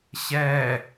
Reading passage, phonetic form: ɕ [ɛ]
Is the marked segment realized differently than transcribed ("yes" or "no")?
no